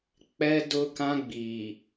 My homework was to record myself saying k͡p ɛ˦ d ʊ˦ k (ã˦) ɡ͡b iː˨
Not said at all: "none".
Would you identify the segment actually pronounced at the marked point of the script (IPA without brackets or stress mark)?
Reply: ã˦